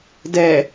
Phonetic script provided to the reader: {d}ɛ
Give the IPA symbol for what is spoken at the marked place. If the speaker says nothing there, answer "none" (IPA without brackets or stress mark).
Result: d